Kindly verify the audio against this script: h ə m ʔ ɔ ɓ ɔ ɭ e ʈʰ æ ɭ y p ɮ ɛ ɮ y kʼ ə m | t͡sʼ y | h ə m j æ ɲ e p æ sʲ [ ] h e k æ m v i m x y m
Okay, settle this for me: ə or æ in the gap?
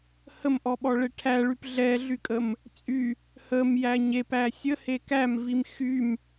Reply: ə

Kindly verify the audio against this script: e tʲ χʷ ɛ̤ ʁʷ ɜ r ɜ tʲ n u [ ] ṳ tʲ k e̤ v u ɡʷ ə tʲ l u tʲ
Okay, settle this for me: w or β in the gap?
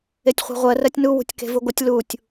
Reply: w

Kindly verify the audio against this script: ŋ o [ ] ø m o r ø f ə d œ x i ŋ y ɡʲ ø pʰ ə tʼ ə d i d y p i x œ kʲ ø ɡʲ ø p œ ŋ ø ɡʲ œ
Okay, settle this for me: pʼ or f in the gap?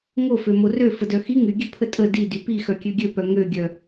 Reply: f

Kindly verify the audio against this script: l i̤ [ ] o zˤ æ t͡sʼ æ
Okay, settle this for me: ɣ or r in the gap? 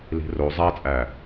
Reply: r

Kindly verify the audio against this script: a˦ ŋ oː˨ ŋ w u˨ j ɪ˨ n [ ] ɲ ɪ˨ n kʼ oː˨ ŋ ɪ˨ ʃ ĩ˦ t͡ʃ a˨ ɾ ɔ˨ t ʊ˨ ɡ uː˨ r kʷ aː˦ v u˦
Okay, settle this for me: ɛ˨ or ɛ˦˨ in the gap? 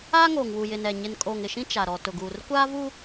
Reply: ɛ˨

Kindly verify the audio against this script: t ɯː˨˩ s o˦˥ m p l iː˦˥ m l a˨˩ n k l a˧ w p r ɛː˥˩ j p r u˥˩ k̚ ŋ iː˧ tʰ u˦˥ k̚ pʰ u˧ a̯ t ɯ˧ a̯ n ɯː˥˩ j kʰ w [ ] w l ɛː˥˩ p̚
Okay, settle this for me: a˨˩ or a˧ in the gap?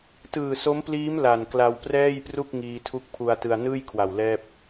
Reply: a˨˩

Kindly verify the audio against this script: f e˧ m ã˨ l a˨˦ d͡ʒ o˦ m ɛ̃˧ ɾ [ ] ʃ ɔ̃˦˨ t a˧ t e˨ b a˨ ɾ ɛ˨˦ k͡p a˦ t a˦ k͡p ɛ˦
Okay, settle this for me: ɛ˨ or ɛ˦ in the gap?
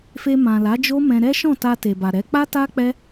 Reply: ɛ˦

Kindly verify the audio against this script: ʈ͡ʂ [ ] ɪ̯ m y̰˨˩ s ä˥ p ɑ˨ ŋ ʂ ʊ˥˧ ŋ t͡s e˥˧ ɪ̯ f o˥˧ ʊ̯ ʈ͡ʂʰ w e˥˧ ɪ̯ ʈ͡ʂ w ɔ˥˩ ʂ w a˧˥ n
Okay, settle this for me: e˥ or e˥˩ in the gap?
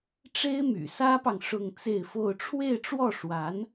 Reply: e˥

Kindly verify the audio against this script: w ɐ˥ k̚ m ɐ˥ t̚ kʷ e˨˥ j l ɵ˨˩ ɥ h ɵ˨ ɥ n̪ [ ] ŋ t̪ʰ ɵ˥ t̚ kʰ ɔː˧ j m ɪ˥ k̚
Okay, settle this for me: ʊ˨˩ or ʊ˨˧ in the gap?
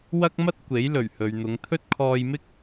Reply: ʊ˨˧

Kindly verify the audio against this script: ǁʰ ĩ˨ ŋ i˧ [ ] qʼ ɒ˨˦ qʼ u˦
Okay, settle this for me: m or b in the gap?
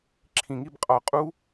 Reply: b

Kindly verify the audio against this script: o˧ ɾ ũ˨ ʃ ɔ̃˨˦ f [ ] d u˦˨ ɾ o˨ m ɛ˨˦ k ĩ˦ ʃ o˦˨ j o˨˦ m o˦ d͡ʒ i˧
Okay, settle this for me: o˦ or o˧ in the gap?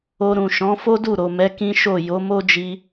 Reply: o˦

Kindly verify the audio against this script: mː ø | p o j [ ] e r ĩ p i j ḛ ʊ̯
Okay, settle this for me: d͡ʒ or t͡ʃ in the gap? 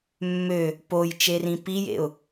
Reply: t͡ʃ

